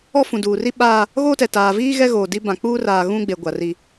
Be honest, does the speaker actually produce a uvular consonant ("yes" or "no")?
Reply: no